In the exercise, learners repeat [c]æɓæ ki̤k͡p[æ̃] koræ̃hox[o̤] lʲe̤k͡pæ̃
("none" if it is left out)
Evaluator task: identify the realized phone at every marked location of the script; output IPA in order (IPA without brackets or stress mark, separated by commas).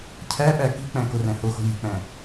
cʰ, æ̃, o̤